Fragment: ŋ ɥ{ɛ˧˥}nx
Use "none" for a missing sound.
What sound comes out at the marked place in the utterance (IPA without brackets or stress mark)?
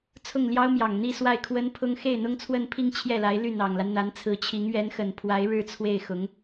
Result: ɛ˧˥